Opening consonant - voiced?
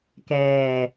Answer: no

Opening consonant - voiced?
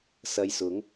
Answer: no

